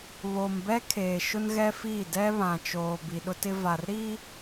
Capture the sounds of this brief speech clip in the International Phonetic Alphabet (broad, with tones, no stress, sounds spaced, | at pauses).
β o˨ m b ɛ˦ kʰ eː˨ ʃ ʊ˦ n ɣ ɛ˦ f iː˦˨ d ɛ˦ β ã˨ t͡ʃ oː˨ b i˨ ɗ ʊ˦ t ɪ˦ v a˨ r ɾ i˦